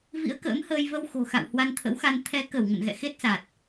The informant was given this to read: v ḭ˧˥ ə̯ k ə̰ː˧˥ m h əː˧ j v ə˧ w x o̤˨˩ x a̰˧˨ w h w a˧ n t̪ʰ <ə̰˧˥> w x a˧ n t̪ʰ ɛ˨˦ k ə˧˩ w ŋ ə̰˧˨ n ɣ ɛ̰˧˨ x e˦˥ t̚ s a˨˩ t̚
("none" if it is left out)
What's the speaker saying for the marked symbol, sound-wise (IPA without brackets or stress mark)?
ə̰˧˥